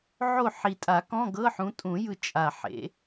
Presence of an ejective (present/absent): present